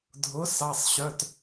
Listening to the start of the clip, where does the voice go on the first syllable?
rising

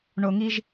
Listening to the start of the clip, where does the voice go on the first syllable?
low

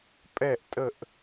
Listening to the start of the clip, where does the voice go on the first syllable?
falling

